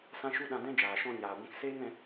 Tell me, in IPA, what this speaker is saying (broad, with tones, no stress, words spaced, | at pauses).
sã˧ʃu˧ ɗã˧dɛ̃˦d͡ʒaː˨ ʃɔ̃˧ ɲaː˨ɡʷɛ̃˧k seː˦ŋ ɛ̃˧